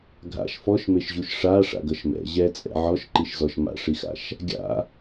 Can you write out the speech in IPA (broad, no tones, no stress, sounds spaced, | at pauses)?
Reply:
ɡʱ a̰ ʃ f ɔ ʃ m e ʃ ʑ u ʃ ʂ a ʂ a̰ ɡ ʌ ʃ m ɛ̰ ʑ ɛ t͡sʼ ɛ̰ ʕ ɔ ʃ ǃ i ʃ z ɔ ʃ m a̰ ʂ i x a̰ ʃ | ɡʲ a̰